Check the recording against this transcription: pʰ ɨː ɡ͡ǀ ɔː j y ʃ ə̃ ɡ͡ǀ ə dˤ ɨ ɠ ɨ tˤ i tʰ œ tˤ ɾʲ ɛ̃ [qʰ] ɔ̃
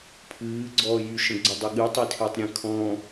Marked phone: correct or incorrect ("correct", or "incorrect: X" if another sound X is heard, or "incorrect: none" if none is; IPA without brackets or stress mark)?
incorrect: kʰ